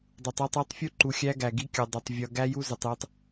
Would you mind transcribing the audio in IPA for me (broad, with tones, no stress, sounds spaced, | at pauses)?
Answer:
dˤ u˨ tˤ a˦ tˤ i˨˦ tˤ fʲ u˦ ǃ u˨ xʲ æ˦ ɡ æ˨ ɡ i˦ kʲ ʌ˨ dˤ ʏ˨ tˤ vʲ ʌ˨ ɡ æ˦ j u˦ z ʏ˨ tˤ j ʏ˦ tˤ